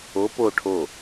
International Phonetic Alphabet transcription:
o po ʈʰo

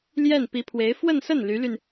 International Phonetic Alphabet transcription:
ljɛ˥˩n pi˧˥pʰwe˧˥ɪ̯ fwə˥˧nsə˥˩n ly˧˥ly˧n

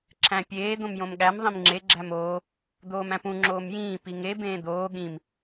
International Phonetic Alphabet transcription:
ǁʰæ̃pʲeː d̪õmjõmɠæm ðˤĩmŋ͡ǁe ɡ͡ǁæmoː | d̪oːmæ̃pũ ŋ͡ǁoːmjĩː piŋe bẽːd̪oː ɠĩm

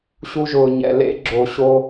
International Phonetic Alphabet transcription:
ɕu˧ʒʊː˨ ɲɛ̰˨ lḛ˧ɡ͡ǁo˨ɕo˧

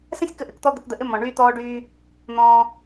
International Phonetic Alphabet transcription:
sɛ̃˦sʲkə˧ʔɘ˨kt̪ɔ˧ d̪ɘ˧kd̪ə˧ʔɘ˦ mɔ̃˨ɳyː˦t̪ɔː˦ɖyː˦ | n̪ɔ̃ː˧

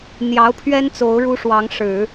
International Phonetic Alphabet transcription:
n̪jɑ˧˥ʊ̯pʰɥɛ˥n t͡so˧˥ʊ̯ɻu˥ʂwɑ˧˥ŋʂɻ̩˨˩˦

